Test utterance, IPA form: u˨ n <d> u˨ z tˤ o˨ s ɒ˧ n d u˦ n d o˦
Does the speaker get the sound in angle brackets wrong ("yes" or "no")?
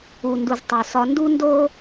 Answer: no